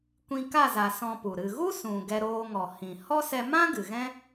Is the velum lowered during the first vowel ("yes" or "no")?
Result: yes